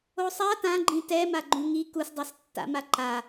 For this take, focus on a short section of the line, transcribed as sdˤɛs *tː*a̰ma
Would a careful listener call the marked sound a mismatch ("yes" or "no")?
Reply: no